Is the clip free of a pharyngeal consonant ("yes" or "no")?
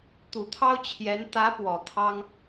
yes